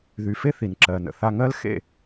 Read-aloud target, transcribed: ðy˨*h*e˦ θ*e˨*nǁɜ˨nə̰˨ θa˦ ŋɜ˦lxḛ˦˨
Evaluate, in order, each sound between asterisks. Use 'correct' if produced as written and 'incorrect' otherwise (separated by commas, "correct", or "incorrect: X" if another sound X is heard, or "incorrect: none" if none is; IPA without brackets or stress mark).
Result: incorrect: f, incorrect: i˨